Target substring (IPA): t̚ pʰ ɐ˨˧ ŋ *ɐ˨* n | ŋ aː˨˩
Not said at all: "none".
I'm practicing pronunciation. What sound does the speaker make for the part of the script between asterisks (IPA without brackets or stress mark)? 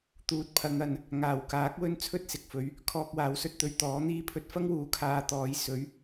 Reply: ɐ˨